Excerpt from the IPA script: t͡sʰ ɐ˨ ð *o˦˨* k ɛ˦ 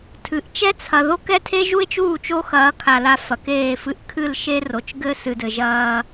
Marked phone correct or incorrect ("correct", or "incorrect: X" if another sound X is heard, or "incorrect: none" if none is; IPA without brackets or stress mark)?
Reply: incorrect: o˦